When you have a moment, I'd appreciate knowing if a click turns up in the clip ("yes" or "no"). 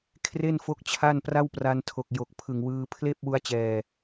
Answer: no